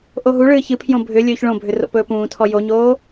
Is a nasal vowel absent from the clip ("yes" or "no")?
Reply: no